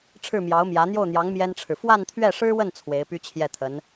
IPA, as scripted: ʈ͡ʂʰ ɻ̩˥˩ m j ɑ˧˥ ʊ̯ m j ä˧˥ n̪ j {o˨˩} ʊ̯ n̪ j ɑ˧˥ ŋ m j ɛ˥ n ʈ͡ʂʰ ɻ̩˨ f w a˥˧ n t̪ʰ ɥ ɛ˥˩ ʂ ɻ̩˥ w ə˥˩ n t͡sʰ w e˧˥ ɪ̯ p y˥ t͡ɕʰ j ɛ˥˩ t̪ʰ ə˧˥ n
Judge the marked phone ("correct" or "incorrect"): incorrect